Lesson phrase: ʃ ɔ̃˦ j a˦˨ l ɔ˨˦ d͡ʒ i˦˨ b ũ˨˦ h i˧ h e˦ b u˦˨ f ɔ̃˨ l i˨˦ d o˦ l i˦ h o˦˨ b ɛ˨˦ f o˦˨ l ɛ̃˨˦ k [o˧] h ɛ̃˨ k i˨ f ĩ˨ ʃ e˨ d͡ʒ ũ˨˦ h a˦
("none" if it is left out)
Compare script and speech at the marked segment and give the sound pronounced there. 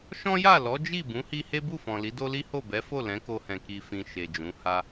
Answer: o˧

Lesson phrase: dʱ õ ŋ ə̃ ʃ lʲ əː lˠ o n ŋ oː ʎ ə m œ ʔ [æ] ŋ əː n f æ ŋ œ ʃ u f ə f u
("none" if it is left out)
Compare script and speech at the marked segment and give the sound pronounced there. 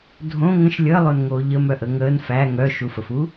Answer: ə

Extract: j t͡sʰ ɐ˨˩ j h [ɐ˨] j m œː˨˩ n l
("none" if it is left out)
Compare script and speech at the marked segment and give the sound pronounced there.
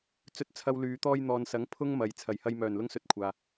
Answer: ɐ˧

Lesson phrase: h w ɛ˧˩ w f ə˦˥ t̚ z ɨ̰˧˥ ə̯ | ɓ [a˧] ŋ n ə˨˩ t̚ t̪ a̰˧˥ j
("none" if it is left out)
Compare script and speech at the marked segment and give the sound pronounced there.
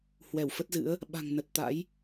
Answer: a̤˨˩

